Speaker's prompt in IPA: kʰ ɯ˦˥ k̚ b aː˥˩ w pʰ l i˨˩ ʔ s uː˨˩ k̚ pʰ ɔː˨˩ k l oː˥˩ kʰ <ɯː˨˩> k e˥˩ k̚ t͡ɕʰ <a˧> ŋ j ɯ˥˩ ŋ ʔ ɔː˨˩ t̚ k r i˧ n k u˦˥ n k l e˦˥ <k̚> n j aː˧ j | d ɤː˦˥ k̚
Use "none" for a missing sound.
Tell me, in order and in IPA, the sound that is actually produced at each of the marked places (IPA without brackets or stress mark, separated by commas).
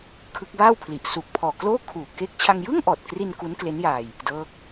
uː˨˩, a˧, none